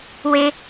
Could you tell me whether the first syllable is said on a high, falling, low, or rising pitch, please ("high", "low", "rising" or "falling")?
high